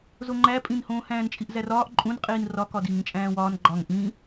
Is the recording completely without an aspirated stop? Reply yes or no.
yes